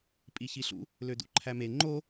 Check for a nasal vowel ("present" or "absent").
absent